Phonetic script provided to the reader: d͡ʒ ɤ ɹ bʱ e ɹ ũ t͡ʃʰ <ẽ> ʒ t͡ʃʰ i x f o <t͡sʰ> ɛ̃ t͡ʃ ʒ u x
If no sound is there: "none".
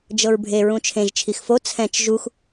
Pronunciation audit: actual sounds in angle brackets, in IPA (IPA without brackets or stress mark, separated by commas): ẽ, t͡sʰ